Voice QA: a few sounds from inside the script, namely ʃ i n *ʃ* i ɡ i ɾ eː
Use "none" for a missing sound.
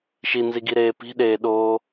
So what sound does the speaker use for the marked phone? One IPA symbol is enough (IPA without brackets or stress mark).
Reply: z